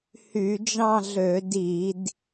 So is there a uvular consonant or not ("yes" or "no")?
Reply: no